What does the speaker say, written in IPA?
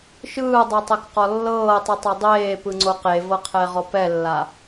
ʃ ɯː dˤ e tˤ e k q ɔ lː ɤː tˤ ɯ tˤ e dˤ eː p ɯ ŋ͡ǀ o q e v ɤ qʰ ɛ ʁ ɔ p ɛ lː a

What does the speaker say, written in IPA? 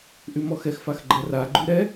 ʔ y m ɔ x ɛ x f a x ɡ͡ǃ ɛ r a ɡ͡ǃ y ɾ ɛ

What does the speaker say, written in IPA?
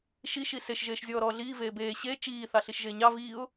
ʃ i ʃ i s e ʃ ʒ eː ʃ zʲ ɔː ɾ ɔː ɮ iː v eː b eː ɕ e t͡ʃ iː θ ɑ ɬ i ʃ ʒ eː ɲ ɑ v iː ʊ̯

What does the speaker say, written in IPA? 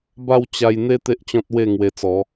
b a˥˧ w t͡ɕ a˧ j n̪ e˦ t̪ e˦ ʔ t͡ɕ ɔ̃˦ t̚ w e˥˧ ŋ w e˧ t͡s ɔ˨˦

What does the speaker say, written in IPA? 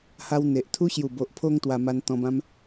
h a˧ w n̪ e˨ ʔ t̪ʰ u˦ ɕ j u˨˩ b o˨ ʔ pʰ o˧ ŋ t̪ w a˧ m a˧ n t̪ ɔ̃˧ b ã˦ m

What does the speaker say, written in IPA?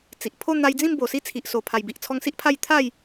t͡s i˨ ʔ pʰ o˥˧ n̪ a˧ j d͡z ĩ˥˧ m b o˨˩ s i˦ t͡sʰ i˨ ʔ s o˨˩ pʰ a˨˩ j b i˨ ʔ t͡sʰ ɔ˧ ŋ s i˦ ʔ pʰ a˥˧ j t̪ʰ a˥˧ j

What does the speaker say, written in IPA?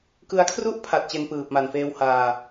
k ɯ˧ a̯ kʰ r u˥˩ ʔ pʰ a˨˩ t̚ t͡ɕ e˧ n p ɯː˨˩ p̚ m a˨˩ n f eː˧ w h aː˧

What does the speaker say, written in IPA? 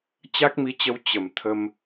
t͡ɕ a˦˥ k̚ m i˧ t͡ɕ ə˧ w t͡ɕ ə˧˩ m t̪ʰ ə˧ m

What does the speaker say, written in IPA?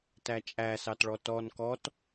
t æ t͡ʃʼ æ s ɑ t ɭ ɔ t ɔ n k ɔ t

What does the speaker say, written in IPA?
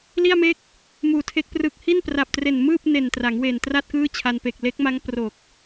l i˥˩ a̯ m e˥˩ k̚ | m uː˨˩ tʰ e˦˥ k̚ p r ɯ˨˩ k̚ h i˥˩ n p r a˨˩ p̚ t r e˨˩ n m ɯː˥˩ p̚ n e˨˩ n t r a˩˦ ŋ w eː˨˩ n t r a˥˩ t̚ k ɯː˥˩ t͡ɕʰ a˧ n p e˨˩ k̚ l e˦˥ k̚ m a˦˥ ŋ p r o˨˩ k̚

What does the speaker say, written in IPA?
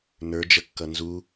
n ə˞ d͡ʒ ə kː ʌ n z u

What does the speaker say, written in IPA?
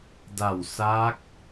d a˨˩ w s aː˦˥ k̚

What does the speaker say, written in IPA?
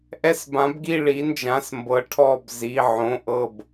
ʔ ɛ˥˧ s b ã˧˥ b ɡ i˥˧ ɭ i˧˥ n d͡ʒ ã˧˥˧ s m b ɤ˧˥ ʈʰ ɔ˥˧ b z i˧˥˧ ʕ õ˧˥˧ ʔ ɤ˥˧ b

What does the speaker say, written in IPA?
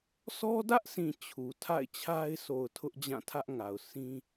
sʰ ɔ˦ d ä˦ ʔ s ĩ˨ t͡ɕʰ u˨ tʰ a̰˦˨ ɪ̯ t͡ɕʰ a˦ ɪ̯ s o˨ ʊ̯ tʰ ʊ˦ ʔ d͡ʑ ã˦˨ tʰ ä˦ ʔ ŋ a˨ ʊ̯ s ĩ˦

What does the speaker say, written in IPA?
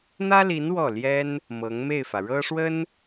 n̪ ä˥ l i˧˥ n w ɔ˥˩ l j ɛ˥ n | m ɤ˧˥ ŋ m e˥˩ ɪ̯ f ä˩ ɻ ɤ˥ ʂ w ə˥ n

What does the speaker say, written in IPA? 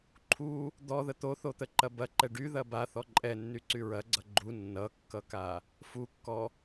ǃʰ u | d̪ ɔ ð ə t̪ o θ o t̪ ə ǃ ɐ b ɐ ǃ ɛ ɖ y ð ɐ b a θ ɔ ǃʼ ɛ nː y ǀ y ɹ ɐ ɡ͡ǀ ʌ ɡ͡ǃ u nː ʌ kː ʌ k a | f u kː ɔ

